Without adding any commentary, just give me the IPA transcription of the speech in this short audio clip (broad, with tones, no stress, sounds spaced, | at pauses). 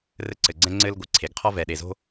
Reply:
r ɘ˧ ǀ ɘ˩ ɡ͡ǀ ɛ̃˧ ŋ͡ǀ ɘ˧ l ɡʷ ɨ˩ ǀʰ e˩ ɡ qʰ ɔ˧ v ɛ˩ ɗ e˩ z o̤˧